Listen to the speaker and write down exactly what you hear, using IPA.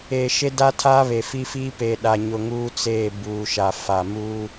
eː˨ ʃ e˦ d a˦ tʰ aː˦ β e˨ f i˦ f iː˦ p e˨ ɗ a˨ ɲ ʊ˨ ŋ uː˦ t͡s eː˦˨ b uː˨ ʃ a˨ f a˨ m uː˦

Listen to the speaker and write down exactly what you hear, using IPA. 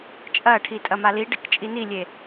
t͡ʃʼ ɐ ʈʰ i tʼ ɐ m a l i ɖ ɛ k t͡ʃʼ i n i lʲ e

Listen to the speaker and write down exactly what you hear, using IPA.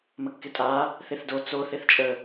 m ə kː ɪ tʼ a | θ e θ d o t͡s o θ e θ t͡ʃʼ ə

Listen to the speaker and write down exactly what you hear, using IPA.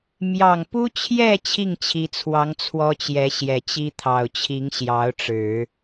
m j ɑ˨˩ ŋ p u˥ t͡ɕʰ j ɛ˥˧ t͡ɕʰ i˥˩ ŋ t͡ɕʰ i˧˥ t͡sʰ w ɑ˧˥ ŋ t͡sʰ w ɔ˥ t͡ɕ j ɛ˧˥ ɕ j ɛ˨˩ t͡ɕ i˥ t̪ʰ ɑ˨˩ ʊ̯ t͡ɕʰ i˧˥ ŋ ɕ j ɑ˧˥ ʊ̯ ʈ͡ʂ ɻ̩˨˩˦

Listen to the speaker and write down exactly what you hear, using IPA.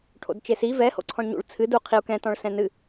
ʈʰ o̰ d t͡ʃ e s i v ɛ h o̰ ǀʰ ɔ̃ ɳ ɲ ṵ ɭ t͡sʰ ɨ d u qʰ i u̯ k ɛ̃ t ɔ̃ ɭ s ɛ̃ n ɨ

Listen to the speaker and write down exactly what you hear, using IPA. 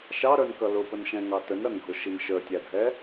ʃ ɑ ɾ ə˞ n k ʌ l ʊ p ə n ʃ ɛ̃ ŋ ɑ t ə n ɾ ʌ n ɡʱ ʊ ʃ i n ʃ ə˞ tʲ æ dʱ ɛ

